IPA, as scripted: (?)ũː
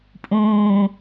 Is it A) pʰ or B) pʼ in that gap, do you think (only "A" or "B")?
B